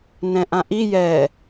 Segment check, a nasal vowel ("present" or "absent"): present